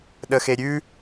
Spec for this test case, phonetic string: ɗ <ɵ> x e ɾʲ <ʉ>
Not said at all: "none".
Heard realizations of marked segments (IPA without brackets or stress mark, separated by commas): ə, ʉ